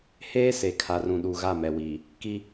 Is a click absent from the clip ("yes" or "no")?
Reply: yes